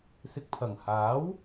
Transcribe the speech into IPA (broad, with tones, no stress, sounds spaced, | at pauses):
s ɪ˨ k̚ pʰ ɐ˨˩ ŋ h aː˨˥ w